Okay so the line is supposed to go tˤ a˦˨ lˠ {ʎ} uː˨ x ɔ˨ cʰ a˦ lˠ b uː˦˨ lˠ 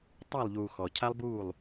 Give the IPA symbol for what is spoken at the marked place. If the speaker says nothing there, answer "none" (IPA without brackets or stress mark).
ʎ